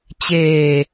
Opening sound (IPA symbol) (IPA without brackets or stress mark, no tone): t͡ɕ